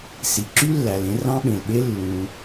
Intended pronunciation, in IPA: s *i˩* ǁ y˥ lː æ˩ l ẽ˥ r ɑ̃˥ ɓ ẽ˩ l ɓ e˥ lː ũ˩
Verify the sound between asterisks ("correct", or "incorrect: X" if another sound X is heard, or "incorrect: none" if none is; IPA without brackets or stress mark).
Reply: correct